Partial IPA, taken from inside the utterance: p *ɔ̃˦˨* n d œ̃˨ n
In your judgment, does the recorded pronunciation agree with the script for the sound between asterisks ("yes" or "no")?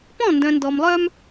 yes